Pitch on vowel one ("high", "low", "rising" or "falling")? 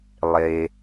low